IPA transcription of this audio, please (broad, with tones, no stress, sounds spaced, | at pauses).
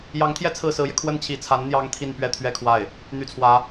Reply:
j ɑ˧˥ ŋ t̪ʰ j ɛ˥˧ t͡sʰ ɹ̩˥˩ s ɹ̩˧˥ j ɛ˧ kʰ w ə˥˩ n t͡ɕʰ i˧˥ t͡sʰ a˧˥ n n̪ j ɑ˥ ŋ t̪ʰ i˥˩ n p ɥ ɛ˥ t̪ʰ ɥ ɛ˥˧ kʰ w a˥˩ ɪ̯ | n̪ y˥˩ t͡sʰ w ä˥